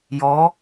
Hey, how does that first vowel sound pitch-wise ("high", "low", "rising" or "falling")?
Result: rising